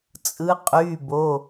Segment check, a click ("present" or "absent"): absent